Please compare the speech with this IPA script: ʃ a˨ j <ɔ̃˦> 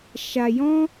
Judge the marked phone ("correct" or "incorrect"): correct